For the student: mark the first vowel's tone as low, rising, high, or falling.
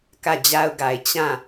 falling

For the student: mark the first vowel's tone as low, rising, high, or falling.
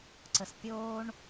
low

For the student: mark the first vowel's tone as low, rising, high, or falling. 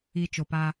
low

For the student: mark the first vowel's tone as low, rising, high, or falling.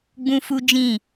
high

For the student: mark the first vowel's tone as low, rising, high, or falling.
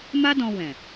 high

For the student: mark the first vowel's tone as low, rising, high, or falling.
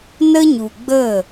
high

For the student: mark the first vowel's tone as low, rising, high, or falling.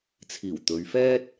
low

